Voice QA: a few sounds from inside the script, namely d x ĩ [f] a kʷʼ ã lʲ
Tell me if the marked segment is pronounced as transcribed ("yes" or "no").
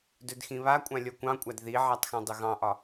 no